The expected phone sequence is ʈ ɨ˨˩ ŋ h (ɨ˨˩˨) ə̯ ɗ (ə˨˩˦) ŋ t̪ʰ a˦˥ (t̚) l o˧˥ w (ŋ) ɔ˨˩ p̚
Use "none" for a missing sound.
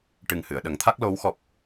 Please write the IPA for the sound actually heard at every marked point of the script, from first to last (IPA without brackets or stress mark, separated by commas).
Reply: ɨ˨˩˨, ə˨˩˦, k̚, x